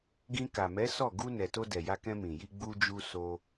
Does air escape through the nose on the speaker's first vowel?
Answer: yes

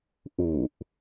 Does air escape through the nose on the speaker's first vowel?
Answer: no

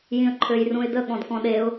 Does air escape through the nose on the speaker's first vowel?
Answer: yes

